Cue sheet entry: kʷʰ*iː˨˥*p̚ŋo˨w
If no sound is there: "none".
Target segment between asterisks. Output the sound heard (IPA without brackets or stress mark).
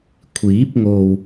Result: iː˨˥